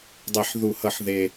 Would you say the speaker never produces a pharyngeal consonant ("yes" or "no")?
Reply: no